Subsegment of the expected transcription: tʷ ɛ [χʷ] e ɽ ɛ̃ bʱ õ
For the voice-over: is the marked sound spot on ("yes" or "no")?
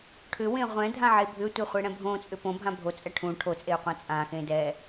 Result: yes